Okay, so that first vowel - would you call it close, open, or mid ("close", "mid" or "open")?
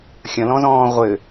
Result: open